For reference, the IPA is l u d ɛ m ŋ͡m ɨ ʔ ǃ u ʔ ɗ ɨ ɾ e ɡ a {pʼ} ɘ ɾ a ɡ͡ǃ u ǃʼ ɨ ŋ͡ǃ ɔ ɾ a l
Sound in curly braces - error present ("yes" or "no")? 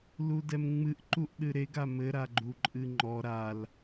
yes